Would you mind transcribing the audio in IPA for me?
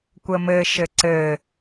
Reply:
kʷ ə m ɘ ʃ ɘ ǀ ɘ

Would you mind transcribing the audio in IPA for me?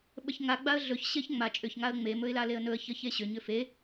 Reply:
ɓ ə ç ŋ a ɡ͡b a ə̯ ɮ ɵ ç ɕ e ç ŋ͡m a t͡ʃʼ ʏ ç ŋ a ə̯ ŋ͡m e m ɵ ɪ̯ l a l e ə̯ n ɵ ə̯ ç ə ç e ɕ ʏ ɲ ʏ f e

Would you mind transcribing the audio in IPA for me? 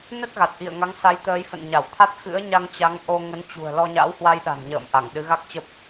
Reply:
n ə˦˥ t̚ ɣ a˨˩ t̚ ʔ ḭ˧˨ ə̯ ŋ a˨˦ ŋ s a˨˦ j t̪ əː˨˦ j f ə̰˧˨ n ɲ a˧˩ w t̪ʰ a˦˥ t̚ x ɨ̰˧˥ ə̯ ɲ a˧ ŋ t͡ɕ a˨˦ ŋ ʔ o˧ ŋ ə˨˦ n t͡ɕ ṳ˨˩ ə̯ l ɔ˧ ɲ a̰˧˥ w h w a˧ j ɗ a̤˨˩ n ɲ ə̰ː˧˨ m ʔ a˧˩ ŋ ɗ ɨ˨˦ ɣ a˦˥ k̚ t͡ɕ ə˦˥ p̚

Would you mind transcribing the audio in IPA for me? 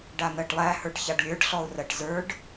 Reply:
ɖ a n̪ ɜ ʈ lˠ æ h ə˞ ʈ ç a ɖ lʲ ə˞ ɖ ɬ ɔ ʊ̯ r ɜ ʈ z ə˞ ɖ

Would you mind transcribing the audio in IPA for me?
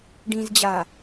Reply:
ɖ ĩ z d͡ʑ a

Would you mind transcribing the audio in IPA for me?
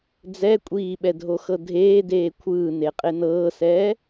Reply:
d͡z ɛ kʷʼ iː ɓ ɛ dʱ o x ɤ dʱ eː d eː kʷʰ ɯː n e qʼ e n ɤː s ɛː

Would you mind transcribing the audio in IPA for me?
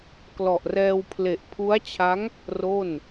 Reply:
k l ɔ˨˩ ʔ r ɛː˧ w pʰ l e˨˩ ʔ pʰ u˦˥ a̯ t͡ɕʰ a˦˥ ŋ | r o˥˩ n

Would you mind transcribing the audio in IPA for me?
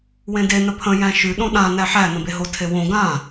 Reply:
w ẽ d e n ə pʰ ə̃ j æ̃ ʃ ʉ ɗ õ ɗ ã n æ ħ æ n ə̃ b e ɦ o tʰ e w õ ɡ ã

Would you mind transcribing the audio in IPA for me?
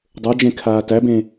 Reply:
dˤ ə˞ d͡ʒ ẽ kʰ aː t æ b ẽ

